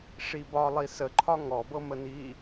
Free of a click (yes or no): no